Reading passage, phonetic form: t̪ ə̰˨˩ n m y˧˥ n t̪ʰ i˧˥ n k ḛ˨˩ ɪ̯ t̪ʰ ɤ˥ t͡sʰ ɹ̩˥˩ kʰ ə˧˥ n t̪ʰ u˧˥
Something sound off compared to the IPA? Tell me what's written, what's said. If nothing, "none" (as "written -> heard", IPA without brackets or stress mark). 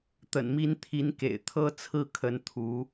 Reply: y˧˥ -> i˧˥